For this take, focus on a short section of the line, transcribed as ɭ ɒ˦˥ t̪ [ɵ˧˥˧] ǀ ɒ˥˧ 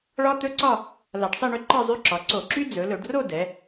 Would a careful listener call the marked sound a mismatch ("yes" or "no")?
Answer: no